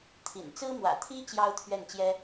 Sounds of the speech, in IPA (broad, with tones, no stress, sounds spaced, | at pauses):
t̪ʰ ḭ˨˩ n t͡s ɹ̩˥ m w ä̰˨˩ t̪ʰ i˥ t͡ɕ j ɑ˥ ʊ̯ t̪ʰ ɥ ɛ˥˩ n t͡ɕ j ɛ˥